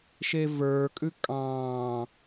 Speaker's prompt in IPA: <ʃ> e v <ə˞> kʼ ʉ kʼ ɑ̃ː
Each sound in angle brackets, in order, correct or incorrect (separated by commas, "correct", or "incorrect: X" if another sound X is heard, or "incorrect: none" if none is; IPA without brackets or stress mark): correct, correct